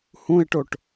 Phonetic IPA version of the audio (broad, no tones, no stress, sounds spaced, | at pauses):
h ũ ɪ̯ ʈ o ʈ